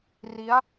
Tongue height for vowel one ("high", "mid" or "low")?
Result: high